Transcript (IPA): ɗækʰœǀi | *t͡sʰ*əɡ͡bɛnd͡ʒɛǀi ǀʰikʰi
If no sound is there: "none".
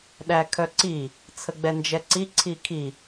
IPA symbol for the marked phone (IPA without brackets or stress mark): t͡sʰ